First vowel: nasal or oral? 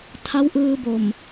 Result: oral